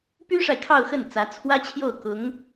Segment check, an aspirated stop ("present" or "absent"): present